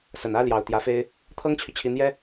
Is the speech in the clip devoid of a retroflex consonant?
yes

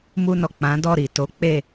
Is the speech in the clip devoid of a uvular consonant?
yes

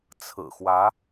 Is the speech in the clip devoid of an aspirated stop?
no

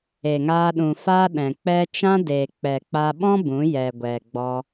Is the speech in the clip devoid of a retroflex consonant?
yes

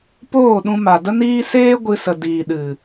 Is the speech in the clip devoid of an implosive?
no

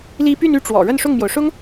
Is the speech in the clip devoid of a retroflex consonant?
no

